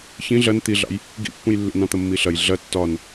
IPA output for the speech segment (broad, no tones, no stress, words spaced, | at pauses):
çĩ ɮɐn t̪iɮɑ̰j | ɡḭpːũj lːḭn ɑ̃t̪ɐmːiɬɐj ɮɐ tːɒn